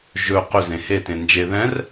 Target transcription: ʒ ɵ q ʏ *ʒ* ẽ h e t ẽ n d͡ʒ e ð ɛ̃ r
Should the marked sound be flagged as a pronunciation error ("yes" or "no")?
yes